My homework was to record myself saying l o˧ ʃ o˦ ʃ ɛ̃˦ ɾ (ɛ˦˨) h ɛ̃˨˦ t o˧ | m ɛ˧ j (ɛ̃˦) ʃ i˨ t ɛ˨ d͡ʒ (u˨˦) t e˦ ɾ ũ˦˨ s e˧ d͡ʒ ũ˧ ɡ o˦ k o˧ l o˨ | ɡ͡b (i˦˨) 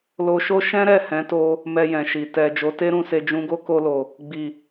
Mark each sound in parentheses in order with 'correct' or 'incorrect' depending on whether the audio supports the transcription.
correct, incorrect: ɛ̃˨, incorrect: o˨˦, incorrect: i˨

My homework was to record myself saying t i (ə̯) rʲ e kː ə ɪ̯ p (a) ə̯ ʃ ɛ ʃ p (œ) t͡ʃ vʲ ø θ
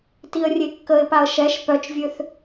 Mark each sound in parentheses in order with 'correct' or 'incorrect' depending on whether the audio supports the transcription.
correct, correct, correct

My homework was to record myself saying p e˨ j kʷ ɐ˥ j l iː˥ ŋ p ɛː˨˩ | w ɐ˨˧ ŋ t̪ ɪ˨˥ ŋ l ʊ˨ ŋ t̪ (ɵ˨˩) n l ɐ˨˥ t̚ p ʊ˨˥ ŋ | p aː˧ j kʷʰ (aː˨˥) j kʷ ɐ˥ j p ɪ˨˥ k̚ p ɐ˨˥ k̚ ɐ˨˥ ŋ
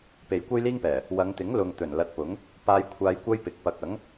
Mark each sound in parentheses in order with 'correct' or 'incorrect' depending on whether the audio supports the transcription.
correct, incorrect: aː˧

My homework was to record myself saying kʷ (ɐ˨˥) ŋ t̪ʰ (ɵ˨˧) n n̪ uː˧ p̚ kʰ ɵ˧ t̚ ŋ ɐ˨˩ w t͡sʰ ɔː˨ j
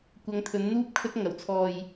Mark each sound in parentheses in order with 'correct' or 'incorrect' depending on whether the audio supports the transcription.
incorrect: ɐ˨˧, correct

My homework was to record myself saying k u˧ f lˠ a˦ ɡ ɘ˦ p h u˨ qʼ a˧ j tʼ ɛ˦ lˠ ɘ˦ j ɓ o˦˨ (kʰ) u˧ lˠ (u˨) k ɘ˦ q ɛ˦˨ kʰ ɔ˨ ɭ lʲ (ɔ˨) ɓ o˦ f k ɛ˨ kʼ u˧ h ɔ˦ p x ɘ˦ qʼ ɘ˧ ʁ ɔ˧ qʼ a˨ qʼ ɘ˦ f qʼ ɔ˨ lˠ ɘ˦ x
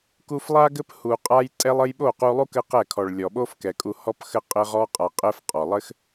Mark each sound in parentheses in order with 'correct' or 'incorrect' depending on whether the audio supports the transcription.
incorrect: q, incorrect: u˦, correct

